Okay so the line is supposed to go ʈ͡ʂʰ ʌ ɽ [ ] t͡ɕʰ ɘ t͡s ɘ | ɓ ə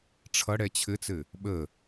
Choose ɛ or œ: ɛ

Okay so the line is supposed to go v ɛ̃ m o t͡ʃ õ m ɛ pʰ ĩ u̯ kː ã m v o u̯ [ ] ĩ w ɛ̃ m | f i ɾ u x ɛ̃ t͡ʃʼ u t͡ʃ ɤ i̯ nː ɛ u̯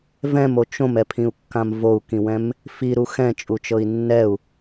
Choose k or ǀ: k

